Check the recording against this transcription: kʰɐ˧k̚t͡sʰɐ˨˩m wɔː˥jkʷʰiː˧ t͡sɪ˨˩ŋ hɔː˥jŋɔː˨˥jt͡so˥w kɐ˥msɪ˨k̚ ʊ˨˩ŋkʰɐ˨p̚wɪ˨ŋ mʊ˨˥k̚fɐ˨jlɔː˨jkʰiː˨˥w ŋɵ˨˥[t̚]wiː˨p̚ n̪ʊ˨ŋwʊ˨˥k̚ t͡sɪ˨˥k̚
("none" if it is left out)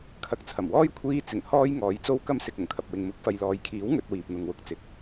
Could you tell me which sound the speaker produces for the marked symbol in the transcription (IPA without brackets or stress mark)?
t̚